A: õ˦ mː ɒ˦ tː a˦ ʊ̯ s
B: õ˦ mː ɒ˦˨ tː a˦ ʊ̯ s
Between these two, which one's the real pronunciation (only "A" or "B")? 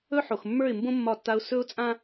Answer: B